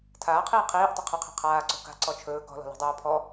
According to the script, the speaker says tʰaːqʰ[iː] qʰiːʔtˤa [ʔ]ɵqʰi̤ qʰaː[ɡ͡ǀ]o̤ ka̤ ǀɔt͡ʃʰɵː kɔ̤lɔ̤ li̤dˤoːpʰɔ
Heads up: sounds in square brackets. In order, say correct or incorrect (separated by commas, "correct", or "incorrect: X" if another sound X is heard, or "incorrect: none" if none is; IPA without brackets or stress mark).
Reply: correct, incorrect: qʰ, incorrect: ǀ